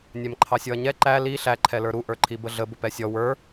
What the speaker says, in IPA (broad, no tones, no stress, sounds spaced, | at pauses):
nʲ æ m ǃʰ ɑ sʲ ɔ ɐ̯ ɲ ɛ ǃ æ l i ɬ æ ǃʰ ɛ l ə˞ ɾ u ʔ ə˞ ǃʰ i b ə ɮ ə b ʊ p ɛ sʲ ɔ w ə˞